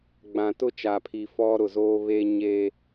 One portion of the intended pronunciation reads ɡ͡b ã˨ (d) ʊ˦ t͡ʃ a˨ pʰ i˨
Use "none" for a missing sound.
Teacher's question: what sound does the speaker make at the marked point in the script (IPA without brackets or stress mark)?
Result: t